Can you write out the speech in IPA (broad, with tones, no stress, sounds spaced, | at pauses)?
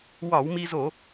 w ɒ˧˩˧ w m i˧ z o˧˩˧